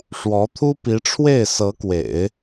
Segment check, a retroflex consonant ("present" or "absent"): present